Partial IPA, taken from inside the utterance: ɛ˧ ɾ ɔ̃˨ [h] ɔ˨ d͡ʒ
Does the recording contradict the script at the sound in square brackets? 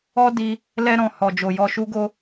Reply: no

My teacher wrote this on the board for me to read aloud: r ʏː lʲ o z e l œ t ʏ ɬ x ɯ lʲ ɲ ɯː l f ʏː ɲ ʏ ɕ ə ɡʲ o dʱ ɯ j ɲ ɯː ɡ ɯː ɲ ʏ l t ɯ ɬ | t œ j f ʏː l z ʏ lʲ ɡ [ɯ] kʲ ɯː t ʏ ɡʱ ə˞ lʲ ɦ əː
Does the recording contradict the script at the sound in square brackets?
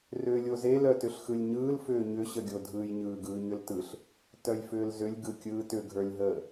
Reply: no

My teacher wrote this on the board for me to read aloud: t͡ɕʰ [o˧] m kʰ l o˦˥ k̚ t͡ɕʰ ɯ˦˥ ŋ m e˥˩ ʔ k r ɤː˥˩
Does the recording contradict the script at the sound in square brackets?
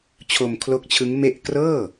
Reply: no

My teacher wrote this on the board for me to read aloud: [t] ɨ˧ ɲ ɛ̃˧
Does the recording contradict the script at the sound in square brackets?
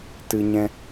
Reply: no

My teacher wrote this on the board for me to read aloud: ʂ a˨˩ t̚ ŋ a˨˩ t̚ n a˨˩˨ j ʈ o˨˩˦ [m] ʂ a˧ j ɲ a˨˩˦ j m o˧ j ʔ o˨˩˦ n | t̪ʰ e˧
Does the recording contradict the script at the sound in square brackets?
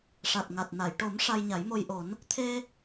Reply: no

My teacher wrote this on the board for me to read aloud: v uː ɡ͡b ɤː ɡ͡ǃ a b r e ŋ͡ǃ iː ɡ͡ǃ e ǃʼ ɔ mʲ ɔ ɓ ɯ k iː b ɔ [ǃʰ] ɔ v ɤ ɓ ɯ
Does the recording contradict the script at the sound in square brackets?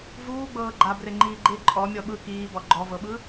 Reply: yes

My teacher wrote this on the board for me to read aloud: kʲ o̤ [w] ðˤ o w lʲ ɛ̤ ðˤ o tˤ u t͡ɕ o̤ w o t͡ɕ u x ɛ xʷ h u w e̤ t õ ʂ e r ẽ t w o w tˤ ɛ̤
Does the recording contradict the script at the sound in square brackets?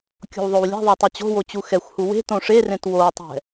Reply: no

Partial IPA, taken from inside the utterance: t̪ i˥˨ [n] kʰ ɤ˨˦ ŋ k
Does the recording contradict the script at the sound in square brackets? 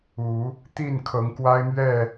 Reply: no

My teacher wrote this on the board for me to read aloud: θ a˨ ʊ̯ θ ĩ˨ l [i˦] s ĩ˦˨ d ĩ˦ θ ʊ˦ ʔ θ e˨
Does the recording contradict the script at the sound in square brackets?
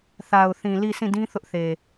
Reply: yes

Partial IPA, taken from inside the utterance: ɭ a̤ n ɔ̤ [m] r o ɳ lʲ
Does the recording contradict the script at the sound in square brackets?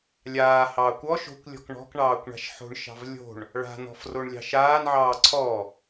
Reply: yes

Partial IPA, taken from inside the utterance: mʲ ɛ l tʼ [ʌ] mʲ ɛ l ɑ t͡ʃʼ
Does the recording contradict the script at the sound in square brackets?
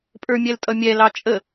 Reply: no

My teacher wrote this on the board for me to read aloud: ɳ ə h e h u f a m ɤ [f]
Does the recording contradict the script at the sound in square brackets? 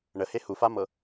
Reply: yes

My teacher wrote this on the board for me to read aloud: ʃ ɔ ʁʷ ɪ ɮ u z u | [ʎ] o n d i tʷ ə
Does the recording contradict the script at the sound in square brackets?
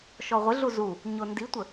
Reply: yes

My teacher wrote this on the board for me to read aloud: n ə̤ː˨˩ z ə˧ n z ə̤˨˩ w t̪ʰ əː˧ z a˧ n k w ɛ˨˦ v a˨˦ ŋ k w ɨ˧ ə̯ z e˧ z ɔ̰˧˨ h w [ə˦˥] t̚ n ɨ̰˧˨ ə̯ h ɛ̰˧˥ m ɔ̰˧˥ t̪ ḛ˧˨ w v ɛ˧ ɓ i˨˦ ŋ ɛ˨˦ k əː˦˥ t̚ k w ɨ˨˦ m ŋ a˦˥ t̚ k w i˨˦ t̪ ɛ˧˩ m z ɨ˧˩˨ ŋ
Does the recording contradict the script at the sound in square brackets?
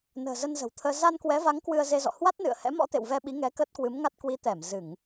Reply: yes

